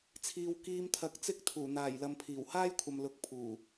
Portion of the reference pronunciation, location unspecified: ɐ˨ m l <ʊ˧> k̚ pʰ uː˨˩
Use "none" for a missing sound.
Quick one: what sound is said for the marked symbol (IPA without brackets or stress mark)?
ʊ˨˥